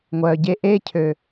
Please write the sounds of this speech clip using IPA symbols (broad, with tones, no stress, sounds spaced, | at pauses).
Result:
ŋʷ œː˩ ɟ e˧ ʔ eː˧ cʰ ø˩